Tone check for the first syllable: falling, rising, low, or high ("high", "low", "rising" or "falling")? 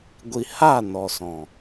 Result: low